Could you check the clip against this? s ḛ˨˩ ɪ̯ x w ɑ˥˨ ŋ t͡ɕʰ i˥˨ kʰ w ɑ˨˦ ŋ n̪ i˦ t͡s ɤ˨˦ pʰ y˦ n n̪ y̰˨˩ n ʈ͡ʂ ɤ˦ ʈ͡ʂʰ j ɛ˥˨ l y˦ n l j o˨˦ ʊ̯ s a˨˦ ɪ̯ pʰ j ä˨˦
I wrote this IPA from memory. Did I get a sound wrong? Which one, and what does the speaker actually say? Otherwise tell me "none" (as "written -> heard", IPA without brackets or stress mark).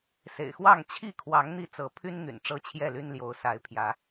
ʈ͡ʂʰ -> t͡ɕʰ